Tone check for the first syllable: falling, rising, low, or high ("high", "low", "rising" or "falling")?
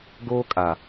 high